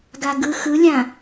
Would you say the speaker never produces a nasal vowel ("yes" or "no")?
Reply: no